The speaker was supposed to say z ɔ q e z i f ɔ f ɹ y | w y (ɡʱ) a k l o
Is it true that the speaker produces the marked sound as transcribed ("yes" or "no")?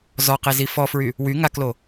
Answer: no